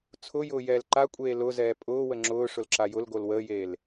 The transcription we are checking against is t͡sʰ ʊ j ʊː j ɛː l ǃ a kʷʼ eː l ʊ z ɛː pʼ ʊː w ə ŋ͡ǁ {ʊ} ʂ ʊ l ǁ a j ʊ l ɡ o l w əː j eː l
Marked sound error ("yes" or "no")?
yes